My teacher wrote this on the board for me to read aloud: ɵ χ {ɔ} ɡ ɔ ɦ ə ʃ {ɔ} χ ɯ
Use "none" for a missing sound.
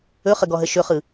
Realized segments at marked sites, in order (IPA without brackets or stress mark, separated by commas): ə, ɵ